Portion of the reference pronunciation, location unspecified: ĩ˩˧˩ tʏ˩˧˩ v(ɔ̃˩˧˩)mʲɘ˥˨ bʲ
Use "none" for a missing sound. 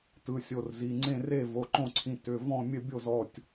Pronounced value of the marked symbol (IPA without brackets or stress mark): ɔ̃˥˨